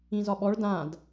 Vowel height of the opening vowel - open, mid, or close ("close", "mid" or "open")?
close